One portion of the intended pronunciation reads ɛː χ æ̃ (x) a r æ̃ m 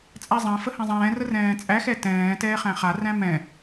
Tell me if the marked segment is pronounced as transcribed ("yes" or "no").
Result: no